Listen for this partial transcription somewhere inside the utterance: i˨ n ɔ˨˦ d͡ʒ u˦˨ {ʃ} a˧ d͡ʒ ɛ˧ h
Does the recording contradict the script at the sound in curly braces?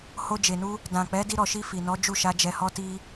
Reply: no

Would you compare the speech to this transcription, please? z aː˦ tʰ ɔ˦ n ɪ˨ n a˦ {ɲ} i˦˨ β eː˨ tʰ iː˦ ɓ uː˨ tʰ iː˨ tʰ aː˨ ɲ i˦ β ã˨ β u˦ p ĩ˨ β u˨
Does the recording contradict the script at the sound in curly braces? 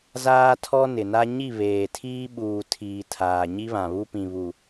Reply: no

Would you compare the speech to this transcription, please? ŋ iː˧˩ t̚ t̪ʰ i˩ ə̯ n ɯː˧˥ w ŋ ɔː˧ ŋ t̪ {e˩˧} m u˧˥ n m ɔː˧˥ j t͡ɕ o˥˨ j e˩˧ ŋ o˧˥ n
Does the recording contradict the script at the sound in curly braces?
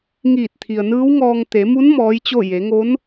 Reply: no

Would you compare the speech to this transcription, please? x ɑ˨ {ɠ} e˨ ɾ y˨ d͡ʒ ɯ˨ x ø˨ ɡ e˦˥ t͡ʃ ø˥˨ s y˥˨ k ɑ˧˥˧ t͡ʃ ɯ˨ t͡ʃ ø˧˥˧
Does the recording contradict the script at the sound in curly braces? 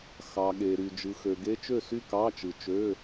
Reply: no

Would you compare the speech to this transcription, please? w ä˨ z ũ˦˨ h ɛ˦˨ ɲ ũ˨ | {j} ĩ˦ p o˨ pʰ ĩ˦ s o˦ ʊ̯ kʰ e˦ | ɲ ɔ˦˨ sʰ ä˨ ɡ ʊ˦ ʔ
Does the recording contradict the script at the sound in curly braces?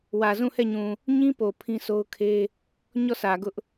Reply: yes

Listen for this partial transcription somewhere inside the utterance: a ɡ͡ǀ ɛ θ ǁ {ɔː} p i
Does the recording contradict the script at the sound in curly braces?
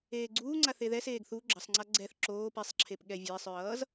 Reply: yes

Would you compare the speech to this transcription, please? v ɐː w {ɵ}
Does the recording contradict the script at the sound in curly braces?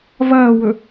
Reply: no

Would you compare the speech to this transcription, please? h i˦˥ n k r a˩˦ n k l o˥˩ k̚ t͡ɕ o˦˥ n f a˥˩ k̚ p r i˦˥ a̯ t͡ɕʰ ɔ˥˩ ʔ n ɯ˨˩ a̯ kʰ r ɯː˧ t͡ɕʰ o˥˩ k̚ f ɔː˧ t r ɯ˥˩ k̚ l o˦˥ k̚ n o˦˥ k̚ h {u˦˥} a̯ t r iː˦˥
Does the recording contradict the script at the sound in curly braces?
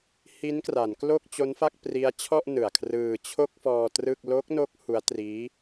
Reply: no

